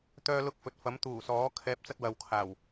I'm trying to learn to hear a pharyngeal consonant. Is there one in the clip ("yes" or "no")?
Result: no